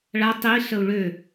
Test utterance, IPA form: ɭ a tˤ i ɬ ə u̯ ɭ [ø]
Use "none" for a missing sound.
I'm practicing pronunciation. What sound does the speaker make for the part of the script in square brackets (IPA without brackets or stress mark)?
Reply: ø